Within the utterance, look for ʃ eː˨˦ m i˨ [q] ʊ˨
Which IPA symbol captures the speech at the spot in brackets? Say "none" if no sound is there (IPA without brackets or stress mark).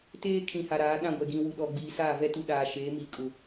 kʼ